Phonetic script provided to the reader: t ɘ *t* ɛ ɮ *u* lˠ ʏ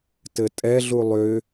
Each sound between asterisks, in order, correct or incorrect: incorrect: tʼ, correct

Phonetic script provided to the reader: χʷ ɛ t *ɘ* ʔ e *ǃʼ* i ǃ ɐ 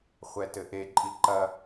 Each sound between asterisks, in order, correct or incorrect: correct, correct

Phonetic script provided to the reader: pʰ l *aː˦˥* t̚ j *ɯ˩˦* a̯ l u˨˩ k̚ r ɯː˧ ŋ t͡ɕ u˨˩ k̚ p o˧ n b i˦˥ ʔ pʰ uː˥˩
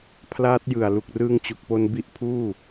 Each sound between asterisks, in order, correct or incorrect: correct, incorrect: ɯ˨˩

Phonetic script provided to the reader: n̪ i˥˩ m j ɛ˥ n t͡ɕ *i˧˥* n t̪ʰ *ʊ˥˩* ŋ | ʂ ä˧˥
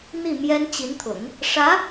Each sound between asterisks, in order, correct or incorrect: correct, incorrect: ʊ̰˨˩˦

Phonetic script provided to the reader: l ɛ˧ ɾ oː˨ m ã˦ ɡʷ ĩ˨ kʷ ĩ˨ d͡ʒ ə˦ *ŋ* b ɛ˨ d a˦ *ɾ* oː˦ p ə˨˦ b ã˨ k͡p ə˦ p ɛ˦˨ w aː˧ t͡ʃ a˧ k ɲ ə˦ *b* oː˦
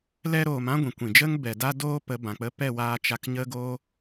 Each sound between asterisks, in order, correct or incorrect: correct, incorrect: d, incorrect: ɡ

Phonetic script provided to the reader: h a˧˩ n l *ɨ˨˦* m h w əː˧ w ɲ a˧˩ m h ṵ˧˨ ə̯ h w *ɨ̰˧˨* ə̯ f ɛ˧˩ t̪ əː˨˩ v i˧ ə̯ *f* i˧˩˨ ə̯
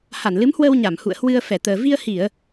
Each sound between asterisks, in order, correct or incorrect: correct, incorrect: ɨ˧, incorrect: h

